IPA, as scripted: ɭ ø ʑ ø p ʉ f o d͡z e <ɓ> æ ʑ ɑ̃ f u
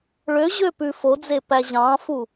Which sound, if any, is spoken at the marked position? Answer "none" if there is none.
p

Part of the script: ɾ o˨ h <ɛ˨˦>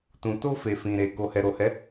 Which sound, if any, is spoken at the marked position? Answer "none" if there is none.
ɛ˨˦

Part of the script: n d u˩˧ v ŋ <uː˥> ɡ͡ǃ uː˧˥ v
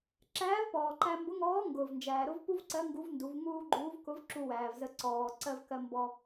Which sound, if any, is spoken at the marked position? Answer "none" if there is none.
uː˥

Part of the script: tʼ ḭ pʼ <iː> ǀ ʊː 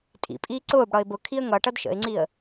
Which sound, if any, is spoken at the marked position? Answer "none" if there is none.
iː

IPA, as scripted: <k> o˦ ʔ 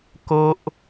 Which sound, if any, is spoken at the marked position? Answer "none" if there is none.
k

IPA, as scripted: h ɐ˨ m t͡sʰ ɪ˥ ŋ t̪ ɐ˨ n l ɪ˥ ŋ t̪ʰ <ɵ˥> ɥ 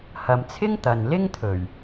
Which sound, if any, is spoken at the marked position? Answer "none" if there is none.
ɵ˨˩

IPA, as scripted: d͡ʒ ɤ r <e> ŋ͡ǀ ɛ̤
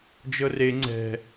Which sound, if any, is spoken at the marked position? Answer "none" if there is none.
e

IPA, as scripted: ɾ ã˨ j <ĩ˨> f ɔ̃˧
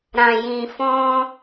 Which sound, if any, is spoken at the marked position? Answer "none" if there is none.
ĩ˨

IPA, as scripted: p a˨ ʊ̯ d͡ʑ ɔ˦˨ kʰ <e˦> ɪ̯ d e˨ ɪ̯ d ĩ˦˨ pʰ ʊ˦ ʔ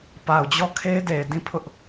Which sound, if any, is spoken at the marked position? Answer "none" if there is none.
e˦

